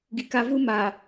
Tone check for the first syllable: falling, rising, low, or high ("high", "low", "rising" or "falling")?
low